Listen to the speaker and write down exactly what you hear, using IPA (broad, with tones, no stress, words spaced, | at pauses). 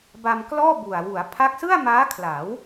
ba˧mklɔː˥˩bu˨˩a̯ wu˩˦a̯pʰa˦˥k̚ sɯ˥˩a̯maː˦˥kʰla˩˦w